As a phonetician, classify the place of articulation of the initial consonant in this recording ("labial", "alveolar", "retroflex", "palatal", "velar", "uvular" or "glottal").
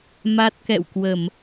labial